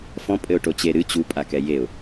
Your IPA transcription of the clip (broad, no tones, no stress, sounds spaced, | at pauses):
f ɔ̃ pʼ ɘ ʊ̯ ʈ o t͡ɕ e ɾ ɨ t͡ɕ u pʼ a k ɛ j e ʊ̯